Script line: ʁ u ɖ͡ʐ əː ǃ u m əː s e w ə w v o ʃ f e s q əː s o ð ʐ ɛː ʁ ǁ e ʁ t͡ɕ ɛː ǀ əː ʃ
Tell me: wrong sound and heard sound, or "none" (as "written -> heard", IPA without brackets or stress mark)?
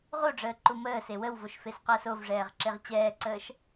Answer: ð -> v